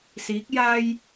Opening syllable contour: rising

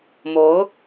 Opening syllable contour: rising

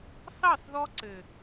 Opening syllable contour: falling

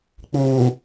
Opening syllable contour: low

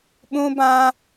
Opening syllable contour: high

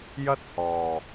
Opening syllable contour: high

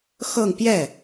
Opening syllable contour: falling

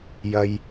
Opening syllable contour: high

